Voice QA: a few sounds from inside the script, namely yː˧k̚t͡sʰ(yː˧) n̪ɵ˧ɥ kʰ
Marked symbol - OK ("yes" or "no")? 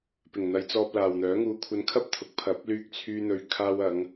yes